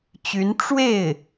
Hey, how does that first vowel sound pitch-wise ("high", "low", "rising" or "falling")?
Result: rising